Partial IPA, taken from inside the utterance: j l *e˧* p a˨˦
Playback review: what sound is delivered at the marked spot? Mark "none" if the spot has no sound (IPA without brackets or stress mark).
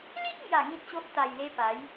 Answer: e˧